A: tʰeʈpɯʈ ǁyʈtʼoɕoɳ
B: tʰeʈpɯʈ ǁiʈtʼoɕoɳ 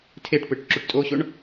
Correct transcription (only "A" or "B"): A